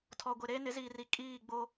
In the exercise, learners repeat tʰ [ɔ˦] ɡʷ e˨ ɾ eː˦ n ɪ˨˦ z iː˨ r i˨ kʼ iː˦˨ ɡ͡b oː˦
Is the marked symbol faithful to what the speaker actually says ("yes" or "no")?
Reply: no